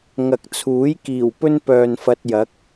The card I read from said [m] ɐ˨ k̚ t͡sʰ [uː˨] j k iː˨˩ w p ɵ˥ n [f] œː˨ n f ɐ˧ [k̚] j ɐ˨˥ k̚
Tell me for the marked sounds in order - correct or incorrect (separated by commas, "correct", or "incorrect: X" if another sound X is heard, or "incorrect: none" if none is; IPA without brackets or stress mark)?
incorrect: ŋ, incorrect: uː˨˥, incorrect: p, incorrect: t̚